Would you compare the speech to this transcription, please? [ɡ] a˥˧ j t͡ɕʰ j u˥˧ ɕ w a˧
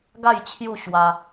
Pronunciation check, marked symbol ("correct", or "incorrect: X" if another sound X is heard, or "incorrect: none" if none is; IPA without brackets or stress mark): correct